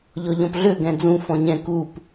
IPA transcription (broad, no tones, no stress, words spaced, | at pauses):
ʎɔʎɔ̃pɮø ɡɛ̃d͡zũ fɔ̃ɲɛ̃ kup